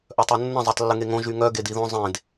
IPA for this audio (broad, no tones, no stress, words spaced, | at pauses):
ʔœtˤonːə̃ zˤetˤlːəŋeŋõ ʒyŋœ ɡediðõ zˤẽd